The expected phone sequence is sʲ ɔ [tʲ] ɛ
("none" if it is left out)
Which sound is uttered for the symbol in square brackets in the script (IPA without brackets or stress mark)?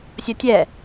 tʲ